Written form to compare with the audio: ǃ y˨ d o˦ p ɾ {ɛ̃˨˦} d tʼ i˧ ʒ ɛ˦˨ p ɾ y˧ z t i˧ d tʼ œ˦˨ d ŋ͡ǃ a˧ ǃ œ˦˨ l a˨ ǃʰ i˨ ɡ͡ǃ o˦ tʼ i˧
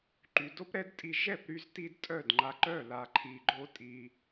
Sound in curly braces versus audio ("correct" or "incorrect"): incorrect